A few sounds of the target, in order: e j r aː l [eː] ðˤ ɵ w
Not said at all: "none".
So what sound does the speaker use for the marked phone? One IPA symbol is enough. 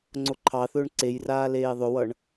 eː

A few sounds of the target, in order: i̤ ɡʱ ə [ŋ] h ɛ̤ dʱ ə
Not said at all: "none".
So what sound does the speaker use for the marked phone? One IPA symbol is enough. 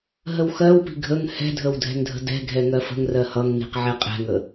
ŋ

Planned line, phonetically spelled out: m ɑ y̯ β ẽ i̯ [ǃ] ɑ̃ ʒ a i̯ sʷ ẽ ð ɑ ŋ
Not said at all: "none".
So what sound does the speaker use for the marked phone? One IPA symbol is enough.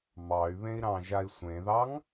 ɾ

